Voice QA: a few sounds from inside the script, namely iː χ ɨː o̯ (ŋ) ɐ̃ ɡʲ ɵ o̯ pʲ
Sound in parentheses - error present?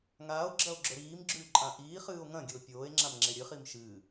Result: no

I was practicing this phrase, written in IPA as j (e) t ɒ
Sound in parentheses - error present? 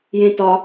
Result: yes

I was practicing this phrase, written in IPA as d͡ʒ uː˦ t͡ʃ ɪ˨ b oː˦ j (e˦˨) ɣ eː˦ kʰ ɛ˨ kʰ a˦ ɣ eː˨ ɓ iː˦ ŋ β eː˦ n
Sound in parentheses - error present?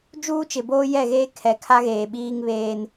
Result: yes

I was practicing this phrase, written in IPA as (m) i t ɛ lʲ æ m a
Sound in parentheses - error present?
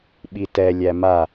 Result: yes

